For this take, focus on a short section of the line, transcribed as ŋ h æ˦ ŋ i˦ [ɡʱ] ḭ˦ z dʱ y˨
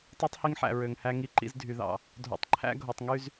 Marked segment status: incorrect: ǃ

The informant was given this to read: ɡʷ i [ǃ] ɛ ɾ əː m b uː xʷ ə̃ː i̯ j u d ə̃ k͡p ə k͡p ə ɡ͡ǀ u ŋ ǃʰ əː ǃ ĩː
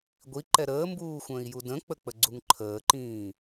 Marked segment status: correct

